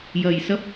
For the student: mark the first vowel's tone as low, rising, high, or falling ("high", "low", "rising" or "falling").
low